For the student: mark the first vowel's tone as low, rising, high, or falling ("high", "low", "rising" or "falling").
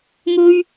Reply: high